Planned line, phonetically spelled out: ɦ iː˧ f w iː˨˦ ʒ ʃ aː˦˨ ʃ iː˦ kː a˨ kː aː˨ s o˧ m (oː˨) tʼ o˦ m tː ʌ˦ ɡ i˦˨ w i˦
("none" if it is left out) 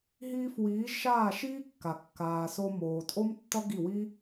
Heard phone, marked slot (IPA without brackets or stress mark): oː˨